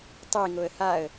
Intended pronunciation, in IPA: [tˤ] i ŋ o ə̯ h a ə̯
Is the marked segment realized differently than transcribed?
no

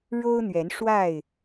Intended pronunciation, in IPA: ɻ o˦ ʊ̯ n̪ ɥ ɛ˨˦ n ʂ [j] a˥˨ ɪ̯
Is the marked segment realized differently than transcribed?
yes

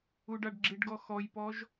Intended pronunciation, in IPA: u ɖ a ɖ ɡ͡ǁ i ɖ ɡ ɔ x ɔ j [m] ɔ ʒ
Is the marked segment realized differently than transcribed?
yes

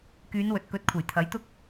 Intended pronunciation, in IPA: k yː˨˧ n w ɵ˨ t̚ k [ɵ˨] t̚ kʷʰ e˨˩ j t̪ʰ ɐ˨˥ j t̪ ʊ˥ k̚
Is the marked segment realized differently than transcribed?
yes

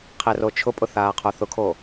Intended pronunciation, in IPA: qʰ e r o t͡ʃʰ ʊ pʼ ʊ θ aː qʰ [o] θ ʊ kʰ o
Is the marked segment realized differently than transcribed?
no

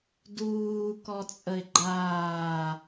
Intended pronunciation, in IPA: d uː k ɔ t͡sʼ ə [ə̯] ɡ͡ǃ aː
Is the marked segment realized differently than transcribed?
yes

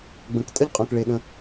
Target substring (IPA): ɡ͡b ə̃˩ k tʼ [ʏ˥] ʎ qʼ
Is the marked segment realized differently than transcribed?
yes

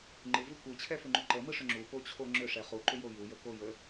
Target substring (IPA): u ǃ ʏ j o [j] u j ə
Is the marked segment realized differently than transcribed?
no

